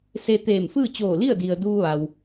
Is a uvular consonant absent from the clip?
yes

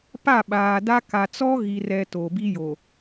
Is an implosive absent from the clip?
no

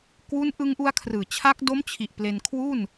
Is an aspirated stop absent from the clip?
no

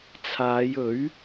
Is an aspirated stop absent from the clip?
no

